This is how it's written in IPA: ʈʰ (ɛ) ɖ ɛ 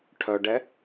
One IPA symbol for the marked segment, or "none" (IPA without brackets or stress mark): œ